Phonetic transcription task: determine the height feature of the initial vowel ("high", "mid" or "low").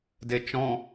mid